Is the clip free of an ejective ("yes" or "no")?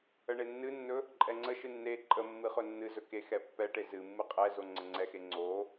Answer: no